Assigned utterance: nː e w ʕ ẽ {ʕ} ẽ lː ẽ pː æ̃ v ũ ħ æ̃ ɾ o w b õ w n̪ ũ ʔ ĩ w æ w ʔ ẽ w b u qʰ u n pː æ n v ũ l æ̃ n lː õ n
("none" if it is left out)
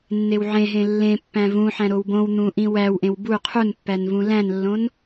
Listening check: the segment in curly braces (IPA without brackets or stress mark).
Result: ɦ